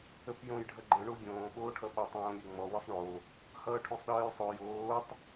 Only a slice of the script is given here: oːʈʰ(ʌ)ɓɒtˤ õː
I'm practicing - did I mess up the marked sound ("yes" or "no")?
no